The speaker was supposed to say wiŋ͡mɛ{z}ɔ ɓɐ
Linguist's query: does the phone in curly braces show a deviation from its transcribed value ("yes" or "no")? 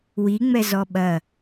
no